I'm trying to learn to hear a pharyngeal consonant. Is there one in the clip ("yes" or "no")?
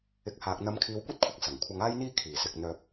no